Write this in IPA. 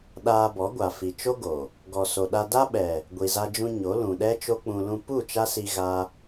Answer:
ɗ aː˧ b ɔ˨˦ ɡʷ a˨ f i˨ t͡ʃ o˦ ɡ o˨ | ɡ ɔ˨ s o˨ ɗ a˧ d a˦ ɓ ɛ˨ | ɡʷ i˨ z a˧ d͡ʒ ũ˧ ɲ o˨˦ l ũ˨ ɗ ɛ˦ t͡ʃ o˦ k͡p ũ˧ l ũ˧ p u˦˨ t͡ʃ a˦ s i˧ ɣ a˦

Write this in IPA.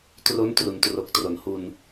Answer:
t r o˦˥ n t r u˩˦ n t r o˨˩ k̚ t r o˩˦ n h u˧ n

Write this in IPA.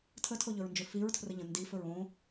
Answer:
tʰ ə tʰ o ʎ ɵ ɹ n d͡ʒ ɵ f i ɹ tʰ r ə ʎ ə̃ n d i f ɵ ɹ õ

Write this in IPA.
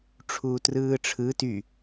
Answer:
ʈ͡ʂʰ uː t r ɯː ʈ͡ʂʰ ɯ t y

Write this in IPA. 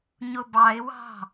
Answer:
ɲ ʊ b ɑ ɪ̯ w ɑ̤

